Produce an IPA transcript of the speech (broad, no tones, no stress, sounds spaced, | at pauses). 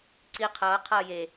ǀ i qʰ ʌː qʰ ʌː j e